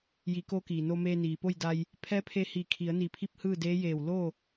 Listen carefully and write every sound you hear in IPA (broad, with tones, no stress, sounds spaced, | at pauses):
j i˩˧ k o˧˥ k iː˩ n o˧ m eː˧ n iː˩ p o˥˨ j d a˧ j | pʰ ɛː˧˥ pʰ e˧ h iː˧˩ kʰ i˩˧ ə̯ n i˧˩ pʰ i˥˨ p̚ h ɯː˥˨ d eː˧˥ j eː˧˩ w l o˥˨